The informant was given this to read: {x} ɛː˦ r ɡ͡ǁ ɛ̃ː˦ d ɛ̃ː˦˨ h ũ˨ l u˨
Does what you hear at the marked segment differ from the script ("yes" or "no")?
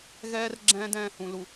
yes